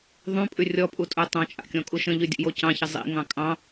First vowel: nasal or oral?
nasal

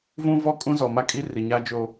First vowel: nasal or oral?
nasal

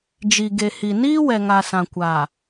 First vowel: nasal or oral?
oral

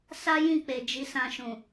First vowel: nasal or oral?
oral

